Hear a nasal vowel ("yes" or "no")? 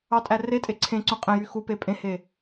yes